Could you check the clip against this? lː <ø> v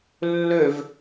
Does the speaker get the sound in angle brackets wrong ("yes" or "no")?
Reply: no